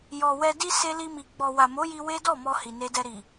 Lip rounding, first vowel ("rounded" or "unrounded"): rounded